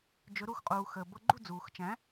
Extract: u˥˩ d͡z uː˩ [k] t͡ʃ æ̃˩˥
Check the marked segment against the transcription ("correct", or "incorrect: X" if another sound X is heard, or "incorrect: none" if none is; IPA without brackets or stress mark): incorrect: x